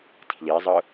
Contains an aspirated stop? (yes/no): yes